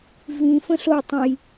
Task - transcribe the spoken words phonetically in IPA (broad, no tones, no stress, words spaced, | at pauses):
vĩ fə̃ɬotˤũj